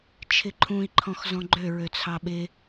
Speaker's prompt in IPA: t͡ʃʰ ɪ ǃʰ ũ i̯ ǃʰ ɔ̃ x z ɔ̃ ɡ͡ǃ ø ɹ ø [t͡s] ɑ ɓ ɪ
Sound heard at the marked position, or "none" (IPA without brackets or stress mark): t͡sʰ